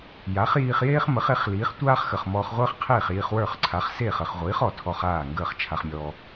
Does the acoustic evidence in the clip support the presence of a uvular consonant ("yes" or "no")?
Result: yes